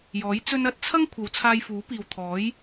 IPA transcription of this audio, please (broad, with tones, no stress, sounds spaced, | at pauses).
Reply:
j ɔː˨˥ j t͡s ɵ˧ n ɐ˧ t̚ t͡sʰ ɐ˥ ŋ kʷʰ ɐ˨˧ w t͡sʰ aː˧ j f uː˨˥ p iː˨ w t̪ʰ ɔː˨˥ j